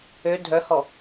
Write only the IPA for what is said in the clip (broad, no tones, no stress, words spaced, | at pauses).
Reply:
ø dʱœhɔ